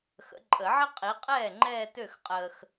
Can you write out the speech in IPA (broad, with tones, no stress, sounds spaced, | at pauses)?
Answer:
x ə̰˨˦ ǃʼ ə˨˩˦ ʕ ə˥ qʼ i˨˦ qʼ ɛː˥˩ ŋ͡ǃ ɛː˥˧ t ø˥˩ x qʼ əː˨ x